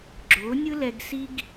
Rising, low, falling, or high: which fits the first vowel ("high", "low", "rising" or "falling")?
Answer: rising